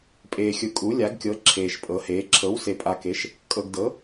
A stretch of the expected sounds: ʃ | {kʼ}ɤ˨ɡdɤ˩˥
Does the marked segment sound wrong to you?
no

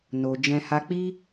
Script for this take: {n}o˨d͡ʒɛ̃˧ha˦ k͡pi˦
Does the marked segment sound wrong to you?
no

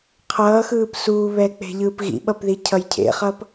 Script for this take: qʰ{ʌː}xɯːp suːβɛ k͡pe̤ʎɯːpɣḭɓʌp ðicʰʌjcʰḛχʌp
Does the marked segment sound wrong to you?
no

